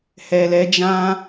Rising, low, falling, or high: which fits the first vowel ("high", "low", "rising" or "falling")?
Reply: low